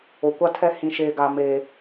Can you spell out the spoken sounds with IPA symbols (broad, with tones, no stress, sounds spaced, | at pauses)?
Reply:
o˨ kʷ a˦ tʰ ɛ˦ h ĩ˦ ʃ eː˦ ɡ a˦ m eː˦